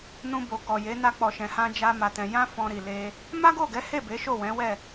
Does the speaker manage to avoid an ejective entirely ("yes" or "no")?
yes